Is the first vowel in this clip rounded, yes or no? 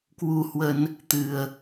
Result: yes